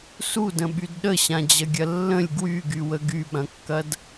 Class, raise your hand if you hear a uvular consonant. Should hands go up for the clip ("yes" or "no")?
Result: no